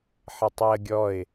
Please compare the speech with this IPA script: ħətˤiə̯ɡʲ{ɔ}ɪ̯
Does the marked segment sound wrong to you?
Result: no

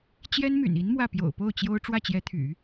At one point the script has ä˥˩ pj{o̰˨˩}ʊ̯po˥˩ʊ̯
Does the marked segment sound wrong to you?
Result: no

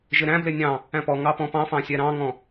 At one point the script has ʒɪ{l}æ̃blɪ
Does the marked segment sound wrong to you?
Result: yes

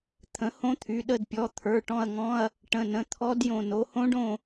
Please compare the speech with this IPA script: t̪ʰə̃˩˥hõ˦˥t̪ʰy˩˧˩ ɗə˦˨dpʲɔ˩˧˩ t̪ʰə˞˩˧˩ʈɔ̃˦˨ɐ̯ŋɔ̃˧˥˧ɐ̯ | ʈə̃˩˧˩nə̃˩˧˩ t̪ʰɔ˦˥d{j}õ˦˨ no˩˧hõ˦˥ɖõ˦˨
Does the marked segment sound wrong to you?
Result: no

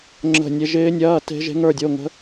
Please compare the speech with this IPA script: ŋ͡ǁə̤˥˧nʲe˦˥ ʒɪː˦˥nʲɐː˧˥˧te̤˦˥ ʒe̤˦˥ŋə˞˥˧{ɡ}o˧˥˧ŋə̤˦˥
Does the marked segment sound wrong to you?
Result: yes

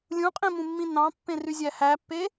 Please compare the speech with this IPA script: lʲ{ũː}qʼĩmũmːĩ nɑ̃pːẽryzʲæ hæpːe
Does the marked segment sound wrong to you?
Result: yes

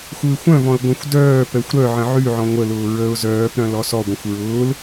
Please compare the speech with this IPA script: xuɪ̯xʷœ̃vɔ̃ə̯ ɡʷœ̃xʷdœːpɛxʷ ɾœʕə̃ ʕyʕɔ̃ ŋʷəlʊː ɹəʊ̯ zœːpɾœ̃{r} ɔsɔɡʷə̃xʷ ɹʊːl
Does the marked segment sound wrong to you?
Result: yes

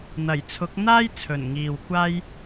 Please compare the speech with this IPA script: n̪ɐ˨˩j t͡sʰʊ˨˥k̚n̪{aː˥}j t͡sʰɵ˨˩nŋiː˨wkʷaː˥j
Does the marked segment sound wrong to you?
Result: no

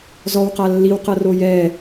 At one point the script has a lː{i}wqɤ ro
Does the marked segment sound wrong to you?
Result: no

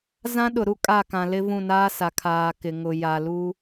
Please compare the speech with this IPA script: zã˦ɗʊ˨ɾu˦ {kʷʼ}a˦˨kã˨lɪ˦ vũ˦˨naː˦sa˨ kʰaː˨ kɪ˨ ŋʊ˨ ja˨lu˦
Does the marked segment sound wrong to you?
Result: yes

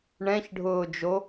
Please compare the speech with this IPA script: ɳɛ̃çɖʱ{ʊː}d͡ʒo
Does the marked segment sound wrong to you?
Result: no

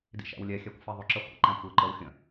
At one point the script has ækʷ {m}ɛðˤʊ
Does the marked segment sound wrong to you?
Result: yes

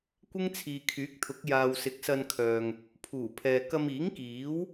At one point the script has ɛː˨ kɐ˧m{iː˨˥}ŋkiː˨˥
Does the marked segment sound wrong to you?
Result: no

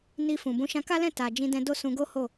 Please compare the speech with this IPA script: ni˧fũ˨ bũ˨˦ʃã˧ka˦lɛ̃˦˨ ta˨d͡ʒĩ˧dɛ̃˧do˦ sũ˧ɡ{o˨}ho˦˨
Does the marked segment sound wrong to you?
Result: yes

